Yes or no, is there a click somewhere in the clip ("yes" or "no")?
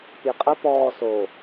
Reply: no